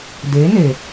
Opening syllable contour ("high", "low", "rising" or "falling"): rising